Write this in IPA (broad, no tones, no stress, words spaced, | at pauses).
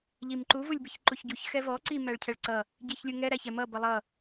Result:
ʎimǃu vulʲbɪçǃuçɟuç xɛvɔ ǀi mæɭcʰɛɭǀʌ | ɟiçlʲuŋɛ ɾæçɛmʌ bʌlˠʌ